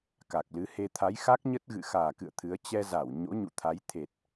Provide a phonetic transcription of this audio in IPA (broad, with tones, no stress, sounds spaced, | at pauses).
k a˨˩ k̚ l ɨ˨˦ h e˧ t̪ʰ a˨˦ j x a˦˥ k̚ ɲ ə˦˥ t̚ ɣ ɨ̰˧˨ x aː˨˩ k ɨ̰˧˨ ə̯ t̪ʰ ɨ˨˦ ə̯ t͡ɕ ɛ˧ z a˧˩ w ɲ o̰˧˥ ɲ ṵ˧˨ t̪ʰ a˨˦ j t̪ʰ e˨˩ t̚